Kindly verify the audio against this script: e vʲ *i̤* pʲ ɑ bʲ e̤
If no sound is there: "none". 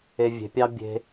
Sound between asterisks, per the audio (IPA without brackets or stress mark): e̤